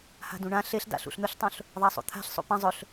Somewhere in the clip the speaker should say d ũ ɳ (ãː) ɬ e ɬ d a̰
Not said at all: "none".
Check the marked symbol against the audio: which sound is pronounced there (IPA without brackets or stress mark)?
ã